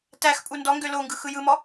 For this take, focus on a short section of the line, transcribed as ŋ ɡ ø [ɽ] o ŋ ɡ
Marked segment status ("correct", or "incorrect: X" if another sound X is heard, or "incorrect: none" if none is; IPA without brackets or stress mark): incorrect: l